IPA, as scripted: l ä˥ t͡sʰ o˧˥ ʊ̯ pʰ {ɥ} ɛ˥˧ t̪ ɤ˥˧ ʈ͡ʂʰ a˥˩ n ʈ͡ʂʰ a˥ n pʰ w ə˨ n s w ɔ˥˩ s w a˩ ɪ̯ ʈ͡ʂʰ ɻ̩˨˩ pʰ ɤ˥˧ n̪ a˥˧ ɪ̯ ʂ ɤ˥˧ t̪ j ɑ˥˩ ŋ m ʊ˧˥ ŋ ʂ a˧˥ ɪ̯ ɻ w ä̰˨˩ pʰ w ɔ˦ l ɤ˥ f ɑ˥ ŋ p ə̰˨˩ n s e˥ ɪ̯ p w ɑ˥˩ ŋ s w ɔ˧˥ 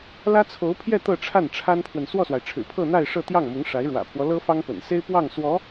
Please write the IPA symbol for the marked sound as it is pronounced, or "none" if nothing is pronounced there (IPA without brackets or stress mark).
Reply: j